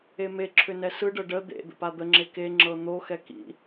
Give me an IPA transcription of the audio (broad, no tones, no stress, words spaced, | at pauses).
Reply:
emeǁʰʏ nɛsɯɖɤ ɖə d̪ḛ d̪ə̰pad̪əŋ͡ǁe keŋ͡ǁɤ n̪oxɛ kḭ